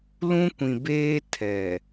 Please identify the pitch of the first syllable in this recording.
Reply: high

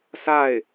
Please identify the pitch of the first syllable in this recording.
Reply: falling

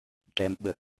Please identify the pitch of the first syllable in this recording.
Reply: rising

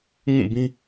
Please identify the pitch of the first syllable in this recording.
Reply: falling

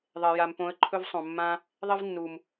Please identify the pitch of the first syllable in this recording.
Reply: low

